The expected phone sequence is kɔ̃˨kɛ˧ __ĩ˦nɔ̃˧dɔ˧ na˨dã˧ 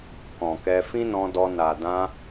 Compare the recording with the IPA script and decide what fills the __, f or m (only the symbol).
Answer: f